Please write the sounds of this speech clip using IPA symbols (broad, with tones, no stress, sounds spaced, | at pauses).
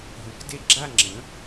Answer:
ɦ ə̃˨˥ k d e˥˧ ɡ͡ǁ a˥˧ ŋ͡ǁ ə̃˨˥